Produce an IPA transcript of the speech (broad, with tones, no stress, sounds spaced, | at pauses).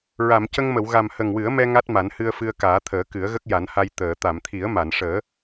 ɹ a˨˩˨ m c ə˧ ŋ m ə˨˩˨ w ɣ a˨˩ m h ə˨˩ ŋ w ɨ˨˩˦ ə̯ m ɛ˧ ŋ a˦˥ t̚ m a˨˩˦ n h ɨ˧ ə̯ f ɨ˧ ə̯ k aː˨˩˦ t̪ʰ əː˨˩˦ k ɨ˨˩˦ ə̯ ɣ ə˦˥ k̚ j a˨˩˦ n h a˧ j t̪ əː˨˩˨ t̪ a˨˩˨ m t̪ʰ i˨˩˦ ə̯ m a˨˩˨ n ʂ əː˨˩˦